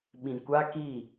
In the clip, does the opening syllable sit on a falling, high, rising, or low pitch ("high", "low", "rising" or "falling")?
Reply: low